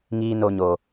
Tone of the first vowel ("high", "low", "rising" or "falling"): high